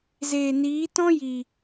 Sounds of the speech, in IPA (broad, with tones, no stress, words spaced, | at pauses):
zeː˨niː˨˦ tɔ̃˦ji˨